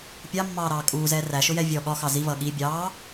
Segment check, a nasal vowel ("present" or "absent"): absent